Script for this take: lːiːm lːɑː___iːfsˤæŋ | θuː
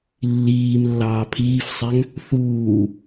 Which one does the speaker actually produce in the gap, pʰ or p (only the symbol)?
pʰ